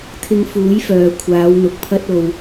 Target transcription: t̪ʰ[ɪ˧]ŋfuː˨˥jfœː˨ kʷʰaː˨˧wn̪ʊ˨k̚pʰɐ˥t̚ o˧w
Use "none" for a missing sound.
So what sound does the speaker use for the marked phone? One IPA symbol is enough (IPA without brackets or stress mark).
ɪ˧